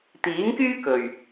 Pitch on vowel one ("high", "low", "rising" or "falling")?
rising